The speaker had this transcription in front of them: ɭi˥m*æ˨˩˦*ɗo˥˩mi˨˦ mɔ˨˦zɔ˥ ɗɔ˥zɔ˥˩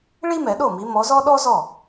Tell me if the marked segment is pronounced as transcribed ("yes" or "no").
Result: no